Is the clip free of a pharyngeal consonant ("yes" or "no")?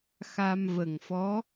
yes